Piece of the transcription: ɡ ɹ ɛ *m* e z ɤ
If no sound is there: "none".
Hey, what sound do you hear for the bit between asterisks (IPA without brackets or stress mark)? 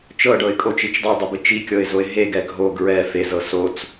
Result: f